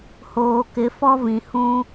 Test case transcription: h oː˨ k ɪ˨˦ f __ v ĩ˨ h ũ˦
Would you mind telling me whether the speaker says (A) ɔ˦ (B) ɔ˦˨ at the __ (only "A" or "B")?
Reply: A